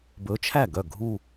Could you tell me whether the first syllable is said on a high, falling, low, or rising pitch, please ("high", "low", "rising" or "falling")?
rising